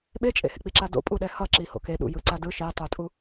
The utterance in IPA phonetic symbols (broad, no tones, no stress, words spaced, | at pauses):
ɓet͡ʃʼḛhḛk͡pi ǁado̰pʼuɗɛ hʌ ǁiho̰ke ɗṵjɯǀadɯ ʃetˤutʼu